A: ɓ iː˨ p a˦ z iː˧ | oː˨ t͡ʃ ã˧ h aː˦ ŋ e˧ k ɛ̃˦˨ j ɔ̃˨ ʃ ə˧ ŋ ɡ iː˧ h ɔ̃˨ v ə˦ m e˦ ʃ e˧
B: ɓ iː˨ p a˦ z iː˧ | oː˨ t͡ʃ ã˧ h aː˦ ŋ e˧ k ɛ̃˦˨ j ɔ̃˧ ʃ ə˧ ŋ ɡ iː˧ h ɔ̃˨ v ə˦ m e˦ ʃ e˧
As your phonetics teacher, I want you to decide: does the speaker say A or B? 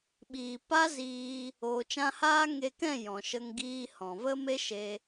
A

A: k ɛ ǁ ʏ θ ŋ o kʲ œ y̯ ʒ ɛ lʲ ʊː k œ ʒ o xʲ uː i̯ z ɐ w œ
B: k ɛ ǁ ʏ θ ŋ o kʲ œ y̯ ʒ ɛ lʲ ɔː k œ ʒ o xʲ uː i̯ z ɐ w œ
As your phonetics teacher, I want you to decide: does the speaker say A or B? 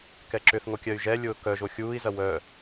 A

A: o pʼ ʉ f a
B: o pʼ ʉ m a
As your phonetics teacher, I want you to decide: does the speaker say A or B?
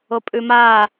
B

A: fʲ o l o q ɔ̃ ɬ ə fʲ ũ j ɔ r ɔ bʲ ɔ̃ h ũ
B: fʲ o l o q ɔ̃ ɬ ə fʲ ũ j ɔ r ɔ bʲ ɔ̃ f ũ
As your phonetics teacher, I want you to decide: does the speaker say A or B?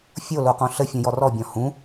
A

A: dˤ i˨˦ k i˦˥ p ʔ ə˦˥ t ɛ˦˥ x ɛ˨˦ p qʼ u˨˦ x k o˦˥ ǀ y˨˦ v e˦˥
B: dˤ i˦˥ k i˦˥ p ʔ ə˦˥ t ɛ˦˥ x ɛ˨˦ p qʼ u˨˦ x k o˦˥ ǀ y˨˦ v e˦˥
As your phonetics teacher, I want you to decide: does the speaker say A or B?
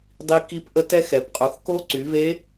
B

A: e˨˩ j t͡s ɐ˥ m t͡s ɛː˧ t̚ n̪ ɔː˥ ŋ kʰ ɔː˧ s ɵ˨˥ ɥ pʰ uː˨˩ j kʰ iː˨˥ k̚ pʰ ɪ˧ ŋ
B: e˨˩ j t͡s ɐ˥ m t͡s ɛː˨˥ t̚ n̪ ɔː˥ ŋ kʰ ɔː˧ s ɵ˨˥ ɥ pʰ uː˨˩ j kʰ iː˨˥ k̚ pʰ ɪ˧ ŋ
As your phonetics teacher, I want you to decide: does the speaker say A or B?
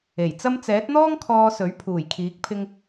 B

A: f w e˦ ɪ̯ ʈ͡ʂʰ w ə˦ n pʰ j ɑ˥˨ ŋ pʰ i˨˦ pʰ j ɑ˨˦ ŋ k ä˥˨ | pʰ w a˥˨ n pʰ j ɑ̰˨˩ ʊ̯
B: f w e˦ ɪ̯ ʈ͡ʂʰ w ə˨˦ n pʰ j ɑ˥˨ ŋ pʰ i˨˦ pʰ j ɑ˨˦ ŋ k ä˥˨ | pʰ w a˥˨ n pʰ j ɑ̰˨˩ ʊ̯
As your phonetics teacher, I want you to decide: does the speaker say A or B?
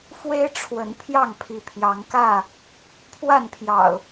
B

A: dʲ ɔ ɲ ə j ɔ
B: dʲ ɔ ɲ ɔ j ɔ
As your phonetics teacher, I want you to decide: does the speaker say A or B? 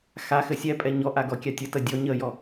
A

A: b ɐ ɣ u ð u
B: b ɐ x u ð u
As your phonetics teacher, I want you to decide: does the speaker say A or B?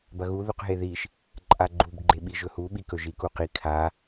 A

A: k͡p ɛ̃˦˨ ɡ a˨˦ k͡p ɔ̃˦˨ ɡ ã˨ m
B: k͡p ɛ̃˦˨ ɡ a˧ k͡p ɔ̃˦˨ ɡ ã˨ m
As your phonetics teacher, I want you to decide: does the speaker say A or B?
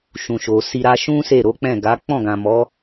A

